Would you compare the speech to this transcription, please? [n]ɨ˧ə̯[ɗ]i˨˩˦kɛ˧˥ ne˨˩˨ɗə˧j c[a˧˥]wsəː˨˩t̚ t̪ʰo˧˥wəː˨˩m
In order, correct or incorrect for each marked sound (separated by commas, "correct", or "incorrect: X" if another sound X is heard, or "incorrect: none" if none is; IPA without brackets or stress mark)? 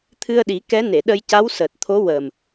incorrect: t̪ʰ, correct, correct